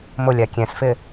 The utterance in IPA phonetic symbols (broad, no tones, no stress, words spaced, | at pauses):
mʊlʲa kʲɛ̃sfɪ